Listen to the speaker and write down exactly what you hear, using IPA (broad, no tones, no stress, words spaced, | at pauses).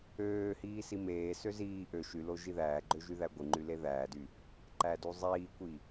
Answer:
øːhiː simeːsø ziː ʔø ʃylo ʒiðæːɡ͡ǃø ʒyðæɡʷɯŋ͡ǃy leðæːdy | ǃæduzˤiːkʷi